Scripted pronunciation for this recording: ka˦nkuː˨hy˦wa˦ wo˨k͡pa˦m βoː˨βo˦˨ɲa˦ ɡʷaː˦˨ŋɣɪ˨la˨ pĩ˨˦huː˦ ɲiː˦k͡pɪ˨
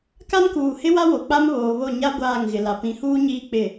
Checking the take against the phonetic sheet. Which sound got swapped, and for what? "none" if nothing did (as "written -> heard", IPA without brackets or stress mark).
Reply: y˦ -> ɪ˦